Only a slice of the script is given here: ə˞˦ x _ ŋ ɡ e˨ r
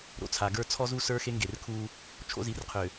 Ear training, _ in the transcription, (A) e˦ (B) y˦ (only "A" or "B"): A